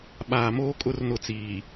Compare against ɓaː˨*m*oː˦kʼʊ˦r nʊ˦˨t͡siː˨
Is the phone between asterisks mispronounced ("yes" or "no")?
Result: no